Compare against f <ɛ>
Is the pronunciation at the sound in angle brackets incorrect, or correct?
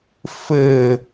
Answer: incorrect